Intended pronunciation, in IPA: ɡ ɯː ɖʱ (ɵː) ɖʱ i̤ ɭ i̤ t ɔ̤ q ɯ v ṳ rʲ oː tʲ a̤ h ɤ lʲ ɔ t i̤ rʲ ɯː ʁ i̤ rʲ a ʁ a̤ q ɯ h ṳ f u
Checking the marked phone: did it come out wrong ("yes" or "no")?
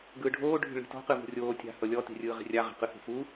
yes